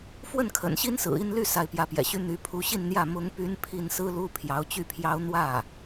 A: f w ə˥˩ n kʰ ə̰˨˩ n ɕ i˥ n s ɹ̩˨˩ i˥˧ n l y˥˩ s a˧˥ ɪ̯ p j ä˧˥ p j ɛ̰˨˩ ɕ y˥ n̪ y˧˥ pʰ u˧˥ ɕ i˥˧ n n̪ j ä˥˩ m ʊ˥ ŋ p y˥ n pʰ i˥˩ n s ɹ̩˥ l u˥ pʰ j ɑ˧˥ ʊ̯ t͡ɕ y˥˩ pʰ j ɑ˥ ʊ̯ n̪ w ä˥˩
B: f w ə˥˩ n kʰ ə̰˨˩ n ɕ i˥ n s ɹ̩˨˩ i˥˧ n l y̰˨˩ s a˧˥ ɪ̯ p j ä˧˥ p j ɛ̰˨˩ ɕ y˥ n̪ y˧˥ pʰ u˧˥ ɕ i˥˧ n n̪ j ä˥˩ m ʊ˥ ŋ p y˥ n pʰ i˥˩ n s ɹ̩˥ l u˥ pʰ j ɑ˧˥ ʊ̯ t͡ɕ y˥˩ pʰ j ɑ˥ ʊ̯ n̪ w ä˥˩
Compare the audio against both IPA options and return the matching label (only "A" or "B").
A